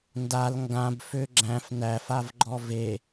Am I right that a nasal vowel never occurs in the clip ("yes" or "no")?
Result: no